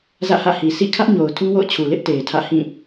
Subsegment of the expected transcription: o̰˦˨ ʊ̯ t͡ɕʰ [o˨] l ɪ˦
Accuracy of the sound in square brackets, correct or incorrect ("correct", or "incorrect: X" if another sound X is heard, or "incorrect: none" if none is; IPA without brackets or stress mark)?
incorrect: u˨